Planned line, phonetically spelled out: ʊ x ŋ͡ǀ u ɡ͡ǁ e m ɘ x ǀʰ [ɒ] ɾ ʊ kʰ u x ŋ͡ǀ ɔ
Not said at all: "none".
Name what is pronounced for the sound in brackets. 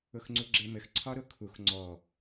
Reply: ɒ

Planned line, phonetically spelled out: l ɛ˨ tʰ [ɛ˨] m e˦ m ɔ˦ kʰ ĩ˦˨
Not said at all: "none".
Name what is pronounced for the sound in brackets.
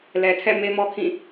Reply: ɛ̰˦˨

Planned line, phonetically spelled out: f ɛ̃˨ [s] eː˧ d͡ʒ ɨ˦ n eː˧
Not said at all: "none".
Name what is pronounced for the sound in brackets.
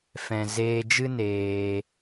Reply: z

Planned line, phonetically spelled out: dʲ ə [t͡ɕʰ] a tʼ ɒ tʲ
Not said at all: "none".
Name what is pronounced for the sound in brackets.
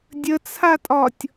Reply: t͡sʰ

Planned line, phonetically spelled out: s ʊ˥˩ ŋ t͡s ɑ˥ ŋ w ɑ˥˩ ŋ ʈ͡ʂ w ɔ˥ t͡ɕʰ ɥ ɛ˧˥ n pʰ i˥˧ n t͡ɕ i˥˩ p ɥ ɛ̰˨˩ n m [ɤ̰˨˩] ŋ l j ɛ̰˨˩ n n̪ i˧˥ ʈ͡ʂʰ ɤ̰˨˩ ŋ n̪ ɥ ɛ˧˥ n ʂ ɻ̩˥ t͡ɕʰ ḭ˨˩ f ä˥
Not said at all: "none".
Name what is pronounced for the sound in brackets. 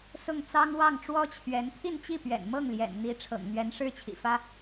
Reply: ɤ˥˩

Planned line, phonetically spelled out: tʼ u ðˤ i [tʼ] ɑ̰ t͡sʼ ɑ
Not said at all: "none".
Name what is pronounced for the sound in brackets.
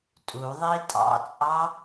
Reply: tʼ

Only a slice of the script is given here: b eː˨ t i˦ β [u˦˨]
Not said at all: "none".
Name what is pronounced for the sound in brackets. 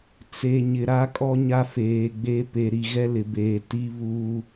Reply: u˦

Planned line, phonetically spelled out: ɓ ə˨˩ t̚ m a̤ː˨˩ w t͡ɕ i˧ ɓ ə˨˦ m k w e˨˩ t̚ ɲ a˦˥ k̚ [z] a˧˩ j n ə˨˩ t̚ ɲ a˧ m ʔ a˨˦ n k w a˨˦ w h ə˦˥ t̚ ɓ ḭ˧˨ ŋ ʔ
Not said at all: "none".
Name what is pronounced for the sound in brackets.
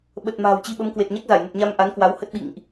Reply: z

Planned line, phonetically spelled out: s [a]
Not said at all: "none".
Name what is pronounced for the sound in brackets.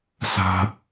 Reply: a̤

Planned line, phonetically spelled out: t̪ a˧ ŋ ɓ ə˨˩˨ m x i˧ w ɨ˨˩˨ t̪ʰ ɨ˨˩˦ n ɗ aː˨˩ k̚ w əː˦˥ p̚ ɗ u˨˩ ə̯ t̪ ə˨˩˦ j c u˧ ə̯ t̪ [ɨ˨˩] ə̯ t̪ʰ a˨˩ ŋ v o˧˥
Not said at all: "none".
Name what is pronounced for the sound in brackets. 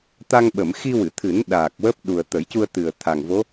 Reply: ɨ˨˩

